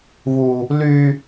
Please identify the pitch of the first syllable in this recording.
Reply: high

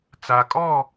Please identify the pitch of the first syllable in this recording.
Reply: low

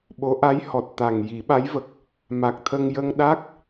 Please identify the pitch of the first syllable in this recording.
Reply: rising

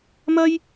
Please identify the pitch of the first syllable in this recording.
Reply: high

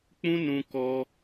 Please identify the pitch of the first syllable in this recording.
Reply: high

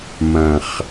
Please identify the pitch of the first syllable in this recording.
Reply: low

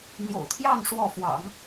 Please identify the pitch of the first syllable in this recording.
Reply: low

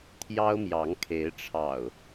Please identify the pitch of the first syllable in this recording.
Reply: high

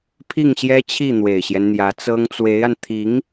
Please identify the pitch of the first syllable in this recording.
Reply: falling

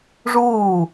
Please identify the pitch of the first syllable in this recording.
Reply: falling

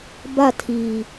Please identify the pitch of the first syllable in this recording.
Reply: falling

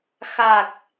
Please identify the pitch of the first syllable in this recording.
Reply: low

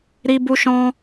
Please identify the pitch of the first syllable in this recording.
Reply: high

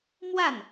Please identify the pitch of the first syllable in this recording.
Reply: falling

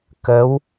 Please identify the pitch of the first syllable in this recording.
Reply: rising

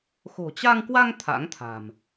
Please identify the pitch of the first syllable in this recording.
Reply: low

